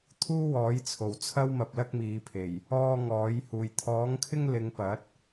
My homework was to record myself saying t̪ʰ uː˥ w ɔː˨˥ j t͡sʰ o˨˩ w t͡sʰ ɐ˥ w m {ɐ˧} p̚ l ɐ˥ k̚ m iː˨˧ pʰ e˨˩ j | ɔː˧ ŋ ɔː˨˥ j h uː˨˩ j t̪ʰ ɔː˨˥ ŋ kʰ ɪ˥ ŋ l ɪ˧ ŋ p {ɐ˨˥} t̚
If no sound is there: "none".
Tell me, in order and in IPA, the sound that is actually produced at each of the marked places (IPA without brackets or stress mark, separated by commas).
ɐ˧, ɐ˨˥